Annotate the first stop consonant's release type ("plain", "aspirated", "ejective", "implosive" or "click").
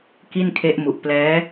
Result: plain